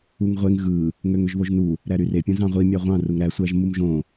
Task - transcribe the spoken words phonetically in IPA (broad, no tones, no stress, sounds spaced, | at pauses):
u ŋ ʁʷ e ŋ ɣ ɯ | ŋ ø ŋ ø ʒ β o ʒ n u | ɾ æ ɾ y r e pʲ õ z ɑ̃ ʁʷ i mʲ ɑ ʁʷ ɑ̃ r u ŋ ɾ æ sʷ æ ʒ m u m ʒ õ